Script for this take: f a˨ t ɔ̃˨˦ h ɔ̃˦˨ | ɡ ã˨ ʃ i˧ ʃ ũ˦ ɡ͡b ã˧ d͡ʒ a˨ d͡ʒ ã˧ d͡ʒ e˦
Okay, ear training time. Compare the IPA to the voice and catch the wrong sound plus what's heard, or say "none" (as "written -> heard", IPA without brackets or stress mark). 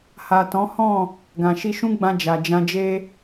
f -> h